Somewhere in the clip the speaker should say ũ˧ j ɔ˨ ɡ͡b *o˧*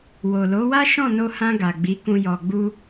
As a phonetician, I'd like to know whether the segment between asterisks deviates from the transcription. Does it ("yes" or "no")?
yes